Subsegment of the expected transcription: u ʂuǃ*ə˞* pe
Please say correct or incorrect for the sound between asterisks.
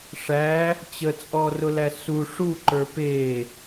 correct